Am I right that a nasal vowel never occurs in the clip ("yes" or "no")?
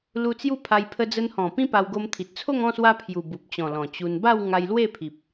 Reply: no